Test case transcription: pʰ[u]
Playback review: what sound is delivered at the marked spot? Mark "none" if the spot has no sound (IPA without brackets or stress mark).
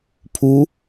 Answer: u